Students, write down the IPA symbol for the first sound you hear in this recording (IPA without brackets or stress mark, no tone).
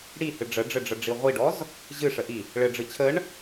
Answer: ɽ